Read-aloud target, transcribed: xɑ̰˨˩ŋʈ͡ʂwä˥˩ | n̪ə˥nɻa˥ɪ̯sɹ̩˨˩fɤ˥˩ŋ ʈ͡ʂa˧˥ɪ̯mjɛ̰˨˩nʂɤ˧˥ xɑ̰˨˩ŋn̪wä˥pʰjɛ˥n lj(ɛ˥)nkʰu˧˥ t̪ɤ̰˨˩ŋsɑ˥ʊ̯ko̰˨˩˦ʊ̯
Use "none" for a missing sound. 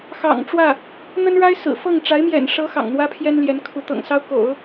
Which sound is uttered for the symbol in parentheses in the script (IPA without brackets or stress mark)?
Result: ɛ˧˥